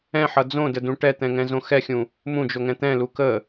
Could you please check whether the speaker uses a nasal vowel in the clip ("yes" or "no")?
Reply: yes